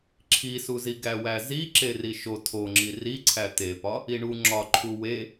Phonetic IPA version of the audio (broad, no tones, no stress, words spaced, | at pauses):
ǁʰisuzi ɡæwæzi ǁeriʃo tʰoŋ͡ǁi riǀʰæ t̪epɒ | iɳu ŋ͡ǁɒǃʰu we